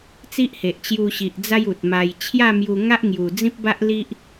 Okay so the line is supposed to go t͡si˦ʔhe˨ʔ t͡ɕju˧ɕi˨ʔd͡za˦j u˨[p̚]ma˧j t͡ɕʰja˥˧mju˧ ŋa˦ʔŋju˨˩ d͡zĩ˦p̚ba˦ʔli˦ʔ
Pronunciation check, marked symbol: incorrect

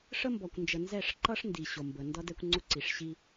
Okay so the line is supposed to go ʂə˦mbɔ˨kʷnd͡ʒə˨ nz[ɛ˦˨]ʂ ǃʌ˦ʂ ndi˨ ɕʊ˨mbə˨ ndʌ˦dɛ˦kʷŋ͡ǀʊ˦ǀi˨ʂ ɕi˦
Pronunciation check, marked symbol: correct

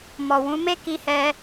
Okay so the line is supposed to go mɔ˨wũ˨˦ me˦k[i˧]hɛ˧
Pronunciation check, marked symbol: correct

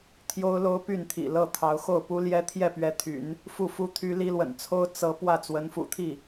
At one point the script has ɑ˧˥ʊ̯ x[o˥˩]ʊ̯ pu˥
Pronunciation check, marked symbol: correct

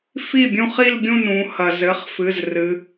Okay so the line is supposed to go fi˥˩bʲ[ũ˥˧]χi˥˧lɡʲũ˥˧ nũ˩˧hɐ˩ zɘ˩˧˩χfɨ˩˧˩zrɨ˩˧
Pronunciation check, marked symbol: correct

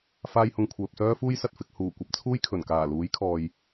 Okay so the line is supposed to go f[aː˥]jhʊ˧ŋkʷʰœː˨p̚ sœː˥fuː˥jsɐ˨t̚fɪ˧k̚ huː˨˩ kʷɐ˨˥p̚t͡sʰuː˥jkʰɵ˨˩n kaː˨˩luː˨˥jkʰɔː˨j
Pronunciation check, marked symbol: correct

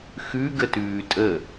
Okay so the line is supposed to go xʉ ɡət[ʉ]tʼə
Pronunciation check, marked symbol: incorrect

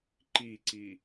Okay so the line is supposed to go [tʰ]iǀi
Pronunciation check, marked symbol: incorrect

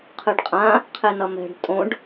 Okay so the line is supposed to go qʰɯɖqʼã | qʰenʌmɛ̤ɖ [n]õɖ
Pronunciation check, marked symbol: incorrect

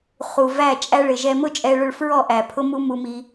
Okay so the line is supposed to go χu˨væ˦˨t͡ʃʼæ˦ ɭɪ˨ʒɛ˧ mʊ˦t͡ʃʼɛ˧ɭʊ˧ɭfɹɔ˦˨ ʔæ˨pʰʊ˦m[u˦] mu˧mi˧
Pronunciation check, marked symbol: correct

